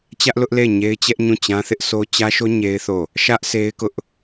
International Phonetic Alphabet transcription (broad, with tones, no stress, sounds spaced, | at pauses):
t͡ɕ ä˦ ʔ l ʊ˦ ʔ l e˦˨ ɪ̯ ɲ e˦ ɪ̯ t͡ɕ ɛ˦ ʔ ɲ ũ˦˨ t͡ɕ ã˦ θ ɪ˦ ʔ sʰ o˦ t͡ɕ ä˦ ʃ o˦ ɲ e˦ ɪ̯ θ o˦˨ | ʃ ä˦ ʔ s e˦ ɪ̯ k ʊ˦ ʔ